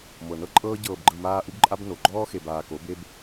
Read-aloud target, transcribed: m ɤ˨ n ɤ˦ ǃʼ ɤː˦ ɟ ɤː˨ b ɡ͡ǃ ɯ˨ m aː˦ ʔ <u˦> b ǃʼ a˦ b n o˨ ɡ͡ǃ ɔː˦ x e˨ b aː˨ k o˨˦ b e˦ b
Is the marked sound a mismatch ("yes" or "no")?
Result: no